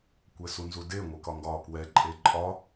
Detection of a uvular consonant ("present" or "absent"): absent